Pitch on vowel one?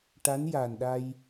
rising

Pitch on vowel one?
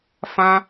high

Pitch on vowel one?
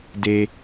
low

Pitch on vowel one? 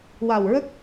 low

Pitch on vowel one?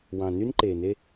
low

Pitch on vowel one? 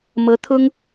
rising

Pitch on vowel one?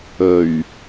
low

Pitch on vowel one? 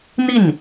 falling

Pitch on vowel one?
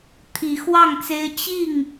rising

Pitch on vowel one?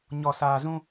low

